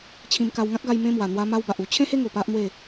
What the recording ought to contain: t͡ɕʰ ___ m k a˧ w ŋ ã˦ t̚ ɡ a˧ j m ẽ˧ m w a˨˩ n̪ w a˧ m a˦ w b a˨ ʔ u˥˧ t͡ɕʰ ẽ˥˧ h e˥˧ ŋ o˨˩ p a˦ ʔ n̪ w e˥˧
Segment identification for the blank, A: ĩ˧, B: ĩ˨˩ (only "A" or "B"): A